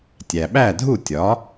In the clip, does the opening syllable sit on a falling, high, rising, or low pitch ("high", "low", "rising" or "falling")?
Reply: low